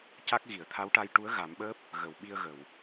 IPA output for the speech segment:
c a˦˥ k̚ ɣ i˨˩˨ ə̯ t̪ʰ a˧˥ w ʈ a˧ j ʈ u˧˥ ə̯ ɣ a˨˩˦ m ɓ əː˦˥ p̚ | ɣ ə˨˩˨ w ɓ i˧ ə̯ ɣ ə˨˩˨ w

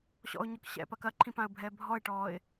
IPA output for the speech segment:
ɕ ɔ̰ ʊ̯ ɲ ɔ k ɕ ɛ̰ p ɐ k ɐ ǃʰ ĩ p ã ə̯ bʱ ɛː bʱ ɔ ɪ̯ ʈ ɔː ɪ̯

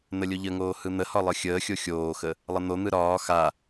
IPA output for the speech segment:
n̪ ə lʲ o ʎ ə ŋ oː h ɯ n̪ ə h ɒ lˠ ɯ xʲ əː xʲ o xʲ oː x ə | lˠ ə n̪ o n̪ ɯ ɾ ɒː x a

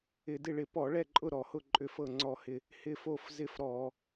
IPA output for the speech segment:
ɪ˧˩˧ d ɪ˥˩ ɭ ɪ˧˩˧ p ɔ˧˩˧ ɭ ɛ˥˩ ǃʼ ʊ˥˩ ɾ ɔ˧˩˧ h ʊ˥˩ ǃʼ ʏ˥˩ f ɤ˥˩ ŋ͡ǀ ɔ˥˩ h ɪ˥˩ | h ɪ˥˩ f o˥˩ f z ɪ˥˩ f ɾ ɔ˧˩˧

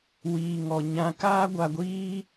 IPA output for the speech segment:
w iː˧ ŋ ɔ˧ ɲ ã˧ k aː˦ ɡʷ a˧ ɡʷ iː˦

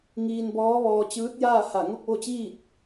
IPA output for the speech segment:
ŋ iː˧ n b ɔː˧˥ ʋ ɔː˧ t͡ɕ ɯː˧˥ t̚ j aː˥˨ h a˧˩ ŋ o˥˨ k̚ ʋ o˥˨ t͡ɕ iː˥˨ t̚

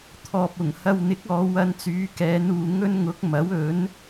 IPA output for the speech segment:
t̪ʰ ɔː˨ p̚ ʊ˨˩ ŋ h ɐ˧ w n̪ ɪ˨˥ k̚ ɔː˨˧ w ɐ˧ n t͡s yː˨˧ k ɛː˨˧ n uː˨ ŋ ɵ˥ n ŋ ʊ˨˥ k̚ m ɐ˨˥ w ɵ˨˥ n

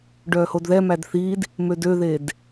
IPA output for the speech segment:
ɖ œː h o d ð ɛ m æ d θ i d | m ø d ø ð e d

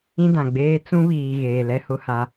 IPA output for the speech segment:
ĩ˦ d ã˨ ɡ͡b eː˦ t͡s ũ˦ β iː˨ ɣ eː˨ l ɛ˦ h ʊ˦ h a˦

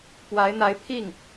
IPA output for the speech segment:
p w a˧˥ ɪ̯ n̪ a˧˥ ɪ̯ pʰ i˥˩ ŋ

